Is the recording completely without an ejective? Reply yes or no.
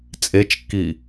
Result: no